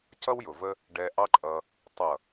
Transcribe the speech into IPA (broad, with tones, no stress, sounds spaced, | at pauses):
c ʌ˦ w j ʊ˨ v ə˦ | ɖ ɛ˧ ʔ ɑ˦ ǃʼ ʌ˧ | tˤ ʌ˨